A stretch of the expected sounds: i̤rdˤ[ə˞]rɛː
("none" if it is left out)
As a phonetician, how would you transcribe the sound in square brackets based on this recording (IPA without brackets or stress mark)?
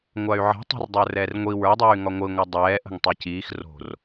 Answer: ə˞